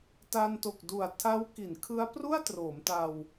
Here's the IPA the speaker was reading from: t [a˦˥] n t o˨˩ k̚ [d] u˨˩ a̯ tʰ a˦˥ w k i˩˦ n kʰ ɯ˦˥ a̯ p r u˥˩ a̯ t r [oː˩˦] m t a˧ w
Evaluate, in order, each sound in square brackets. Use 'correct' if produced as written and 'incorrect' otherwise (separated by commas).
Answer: incorrect, correct, correct